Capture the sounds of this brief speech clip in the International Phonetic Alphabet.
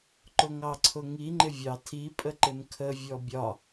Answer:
ǃ ʊ ŋ ɑ ǀʰ ʊ ŋ i ŋ͡ǃ ɪ vʲ ɑ tʰ i pʼ ə ǃ ɪ m kʰ ə vʲ ɔ bʲ ɒ

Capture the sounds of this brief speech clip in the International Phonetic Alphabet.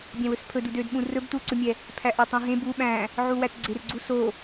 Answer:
bʲ æ̃ w ɵ s pʰ ɵ d u d ø d ɓ ũ r ɵ b t u ǀ ɵ mʲ ɛ | pʰ æ ʔ æ tˤ ũ ɦ ẽ b u ɓ æ̃ | ʕ u w æ t ɡ͡ǀ e r ɡ͡ǀ u s o

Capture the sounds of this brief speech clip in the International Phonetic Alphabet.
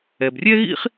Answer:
ɛ˩ b rʲ ɛ˥ ɣ ḭ˥ χ

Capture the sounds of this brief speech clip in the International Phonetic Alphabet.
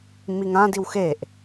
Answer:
m i ŋ ã d i w x e ʔ

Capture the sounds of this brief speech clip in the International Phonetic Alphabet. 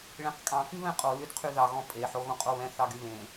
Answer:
ɭ ẽ q kʼ ɑ̃ k y β ɛ̃ qʼ o l y d qʰ y ð ɑ ɣ ɔ̃ pʼ e ħ o ɣ õ qʼ o β ɛ̃ θ ɑ ɡ y β ẽ

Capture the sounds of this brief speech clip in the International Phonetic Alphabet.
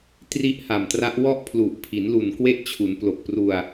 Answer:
t r i˦˥ ʔ h a˨˩ m t r a˦˥ ʔ w ɔ˥˩ ʔ pʰ l u˨˩ ʔ pʰ i˩˦ n l u˨˩ n k w e˦˥ ʔ t͡ɕʰ u˩˦ n p l o˨˩ k̚ p r u˧ a̯

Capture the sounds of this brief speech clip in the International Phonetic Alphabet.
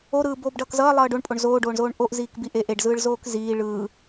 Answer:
o ɾ ɯː b oː b ɖ ʌː k z ʌː lˠ ʌː ɖ o ɳ pʼ o ɳ z oː ɖ oː ɳ z oː ɳ ʔ o ʔ z iː k b i ʔ e ʔ e ɖ z ɯː ɭ z oː k z iː ɭ ɯː

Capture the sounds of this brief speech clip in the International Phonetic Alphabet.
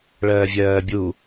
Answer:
ɭ ɜː vʲ ɜː bʲ u

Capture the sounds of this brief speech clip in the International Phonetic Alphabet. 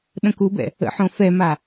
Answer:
ɗ ə̃ k u b ɛ̰ | ə̰ ħ õ f ɛ m a

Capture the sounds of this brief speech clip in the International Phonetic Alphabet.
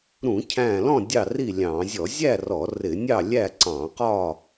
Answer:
ɾ ũ˧˩˧ cʰ æ̃˧˩ l ɔ̃˥˨ dʲ ɑ˥˨ r i˥˨ lʲ ɑ̃˧˩˧ zʲ ɔ˧˩˧ zʲ æ˥˨ r ɔ˧˩˧ r ɪ˧˩˧ nʲ ɑ˥˨ lʲ æ˥˨ ǀ ɑ̃˧˩˧ q ɒ˥˨

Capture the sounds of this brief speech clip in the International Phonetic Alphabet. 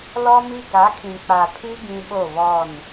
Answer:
l ɔ˦ m i˦ ɡ a˨˦ kʰ ĩ˨ k͡p a˨ pʰ i˦ ɡ ĩ˦ ɓ o˦˨ β ɔ˦˨ n

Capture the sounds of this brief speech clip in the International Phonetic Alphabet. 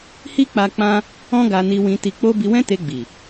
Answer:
h i˦ k͡p a˧ k͡p ã˦ | ɔ̃˦ ɡ a˧ n i˧ w ĩ˧ t i˧ k͡p o˦ b i˧ w ɛ̃˦ t e˧ ɡ͡b i˨

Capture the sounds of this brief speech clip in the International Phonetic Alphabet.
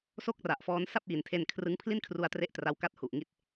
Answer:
s o˥˩ k̚ r a˨˩ ʔ f ɔː˦˥ n s a˥˩ p̚ j i˩˦ n tʰ e˧ n kʰ r ɯ˦˥ ŋ pʰ l i˥˩ n kʰ r u˧ a̯ t r e˥˩ ʔ t r a˦˥ w k a˥˩ t̚ h u˨˩ ʔ ŋ i˦˥ t̚

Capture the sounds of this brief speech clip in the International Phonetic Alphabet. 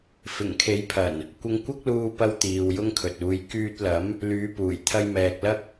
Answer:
f ɪ˨˩ ŋ kʰ e˨˥ j pʰ ɐ˨˩ n | kʷ ɪ˧ ŋ kʷ ɐ˥ k̚ l uː˧ p ɐ˧ w t̪ iː˨ w j ʊ˥ ŋ kʰ ɵ˨ t̚ uː˨˧ j k yː˧ t̚ l ɐ˨˥ m | l yː˨˧ p uː˨˩ j t̪ʰ ɐ˧ j m ɛː˨ k̚ l ɐ˥ k̚

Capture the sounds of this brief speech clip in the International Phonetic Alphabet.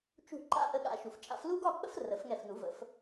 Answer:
t͡ʃ ṳ˧˩ ǃ a̰˦˥ ʔ ə˨˦ ɠ a̰˨˩˦ ʃ u˩ f t͡ʃʼ a̰˨˩˦ f l u˦˥ ɡ ɒ˥˨ k͡p ə̰˦˥ f r ə˨˩˦ f ŋ ɛ˧˩ f n u˨˩˦ v ə̰˨˦ f

